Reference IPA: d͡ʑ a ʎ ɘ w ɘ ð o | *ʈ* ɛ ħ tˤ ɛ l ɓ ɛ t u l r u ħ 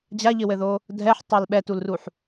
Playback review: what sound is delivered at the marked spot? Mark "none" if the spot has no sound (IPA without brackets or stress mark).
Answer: dʱ